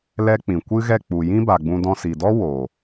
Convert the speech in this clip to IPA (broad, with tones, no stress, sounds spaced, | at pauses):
l ɛ˦ k͡p ĩ˨ kʷ ɨ˦ ɣ ɛ˦˨ k͡p u˨ j ĩ˦ b a˨ ɡ͡b ũ˧ d ɔ̃˧ s i˨ d ɔ˦ w oː˨